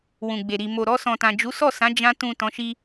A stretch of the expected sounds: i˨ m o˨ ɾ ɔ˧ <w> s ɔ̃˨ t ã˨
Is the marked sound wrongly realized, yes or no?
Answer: yes